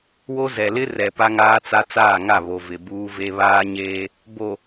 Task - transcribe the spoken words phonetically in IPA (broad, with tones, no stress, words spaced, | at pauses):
wo˦zɛ˨ lɪ˦rɛ˨ pa˦ŋaː˦t͡sa˦ t͡saː˦˨ŋa˦˨ βo˨vɪ˨ buː˦ve˦ βaː˦ɲeː˦ | bo˨